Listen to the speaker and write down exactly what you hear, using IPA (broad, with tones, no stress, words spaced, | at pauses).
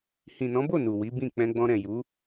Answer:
hĩ˨nɔ̃˨˦bo˦˨ nu˨ wi˨˦bĩ˦˨ k͡pɛ̃˧ɡ͡bɔ̃˧ɾɛ̃˨ju˨˦